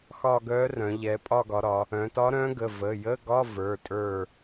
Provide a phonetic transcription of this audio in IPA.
xɒ˦˨ɡœ˧˥rœ̃˩˧ ʎɛ˩˧pʼɒ˦˨ɡɒ˩˧ɾɒ˩˧ | œ̃˩˧tɒ˧˥ɾœ̃˧˥ɡə˩˧˩ və˩˧˩jə˧˥˧ɡɒ˧˥˧ və˞˩˧˩ tʼə˞˦˨

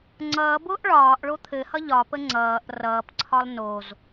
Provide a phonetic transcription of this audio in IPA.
ŋ͡ǀʌːbʊːʔ ɭɒːʔ ɭot̪ʰɘhʌ ʎɒpə ŋ͡ǀʌːʔ rʌːpǀʰɒlˠ noz

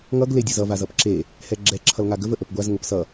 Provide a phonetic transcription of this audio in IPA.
ŋʌɡ ledʲʌzʌ vazʌpǁe | hɛɡ͡ǁɛ ǁʰʌlŋaɡəv əʔəpɡʷaz ŋəpsʌ

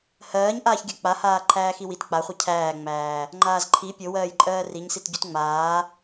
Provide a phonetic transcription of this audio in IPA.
hɜːɲʔaːçɡʲɜ k͡pahaː ǃʰæːxiwit k͡paχʷi cʰæːŋ͡mæː | ŋ͡ǃaːzǃʰi pʲowɜːjǃʼɜː riɲsit ɟutŋ͡maː

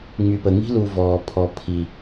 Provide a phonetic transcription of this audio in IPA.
ŋ͡my˨pə˨ŋi̤˦ lu˨ vɔː˨pʰɔ˨ pʰi˨

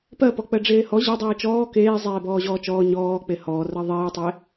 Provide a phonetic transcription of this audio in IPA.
pɜpɔ k͡pɜɖ͡ʐeːhɔ ʑɜdˤiː t͡ʃɔː keː zˤeːbɔːʑɔːt͡ʃɔː ɲɔː k͡pehɔːrɜ ðˤiːtˤe

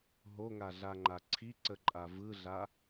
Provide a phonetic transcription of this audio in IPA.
ɦoŋaɮaŋ͡ǃa ǀʰiǀəǃʼa vɯɮa

